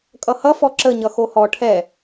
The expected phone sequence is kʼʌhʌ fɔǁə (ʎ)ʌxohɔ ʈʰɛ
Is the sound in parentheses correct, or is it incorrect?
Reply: incorrect